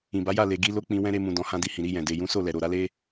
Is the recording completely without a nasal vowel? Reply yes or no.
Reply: no